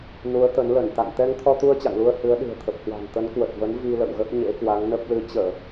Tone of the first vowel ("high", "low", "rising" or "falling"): rising